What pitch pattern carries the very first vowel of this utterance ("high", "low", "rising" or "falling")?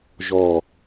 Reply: falling